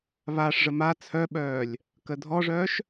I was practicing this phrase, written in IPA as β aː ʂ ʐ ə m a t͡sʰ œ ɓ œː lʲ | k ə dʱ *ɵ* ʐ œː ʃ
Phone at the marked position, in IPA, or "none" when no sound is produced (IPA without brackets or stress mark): ɔ